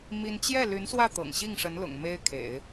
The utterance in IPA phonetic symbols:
m i˥ n t͡ɕ j ɛ˥˩ l y˧˥ n s w ä˥˩ t̪ ɤ̰˨˩ ŋ ɕ i˥˩ ŋ ʂ ə˧˥ n l ʊ̰˨˩ ŋ m e˥ ɪ̯ kʰ ḛ˨˩˦ ɪ̯

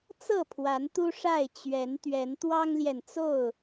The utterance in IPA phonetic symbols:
t͡s ɤ˥˨ pʰ w a˨˦ n t̪ u˦ ʂ a˥˨ ɪ̯ t͡ɕ ɥ ɛ˨˦ n t̪ ɥ ɛ˨˦ n t̪ w ɑ˦ ŋ l j ɛ˨ n t͡s o˥˨ ʊ̯

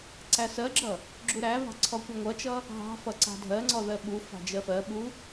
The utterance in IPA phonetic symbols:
ǀ æ s ɜ ɡ͡ǁ ʌ | ɡ͡ǁ u ɾ æ v ɑ̤ ǀʰ ɔ kʷ ʌ ŋʷ ʌ t͡ʃ ʌ | ɦ ɑ̤ f ʌ ǀ ɑ̤ dʱ ɜ ŋ͡ǀ ɔ ð ɜ ɓ u f ɑ̤ d͡ʒ ɜ f ɜ ɓ u

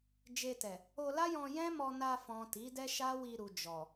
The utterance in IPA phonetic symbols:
d͡ʒ e˧ t ɛ˨ | o˧ l a˦ j ɔ̃˧ j ɛ̃˦ m ɔ˧ n a˧ f ɔ̃˨ t i˨˦ d ɛ˦ ʃ a˦ w i˧ ɾ u˨ d͡ʒ ɔ˨

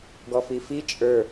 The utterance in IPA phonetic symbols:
ɡ ɔ f i f i t͡ʃʼ ə˞

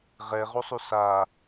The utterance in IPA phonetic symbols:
ʁ ɛ ʁ u sˤ y s a

